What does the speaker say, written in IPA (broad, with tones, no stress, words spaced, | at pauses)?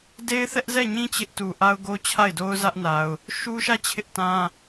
de˦ɪ̯θɛ˦ʔzɛ˦˨ɲĩ˦ t͡ɕɪ˦ʔtu˨ ʔa˦ʊ̯ɡo˦t͡ɕʰa˦˨ɪ̯do˦ʊ̯ zä˦ʔna˨ʊ̯ | ʃu˦ʃä˦˨ t͡ɕʰɪ˦ʔtã˦